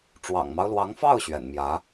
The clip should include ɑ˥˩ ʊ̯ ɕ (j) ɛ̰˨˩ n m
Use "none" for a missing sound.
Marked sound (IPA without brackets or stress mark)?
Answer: ɥ